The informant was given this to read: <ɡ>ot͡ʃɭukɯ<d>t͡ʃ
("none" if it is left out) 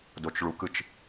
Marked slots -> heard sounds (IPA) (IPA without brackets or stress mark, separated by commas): d, none